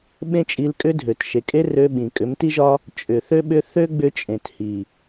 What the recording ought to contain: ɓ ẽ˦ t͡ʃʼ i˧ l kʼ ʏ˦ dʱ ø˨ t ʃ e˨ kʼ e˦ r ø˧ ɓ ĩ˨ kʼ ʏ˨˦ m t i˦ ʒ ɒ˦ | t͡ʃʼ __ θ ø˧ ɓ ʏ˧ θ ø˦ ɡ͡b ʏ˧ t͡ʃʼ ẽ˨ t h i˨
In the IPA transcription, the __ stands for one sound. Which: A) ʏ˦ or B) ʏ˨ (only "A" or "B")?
B